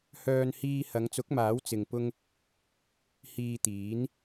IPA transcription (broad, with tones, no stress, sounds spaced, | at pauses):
h œː˧ n h iː˧ h ɐ˨˧ ŋ t͡s ʊ˨˥ k̚ m aː˨˥ w t͡s ɪ˧ ŋ p ʊ˥ ŋ | h iː˧ t̪ iː˨˥ n